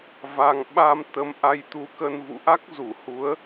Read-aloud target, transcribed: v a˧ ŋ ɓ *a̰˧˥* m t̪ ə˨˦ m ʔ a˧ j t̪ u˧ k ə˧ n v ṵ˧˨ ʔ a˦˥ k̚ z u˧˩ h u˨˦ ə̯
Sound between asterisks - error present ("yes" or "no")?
yes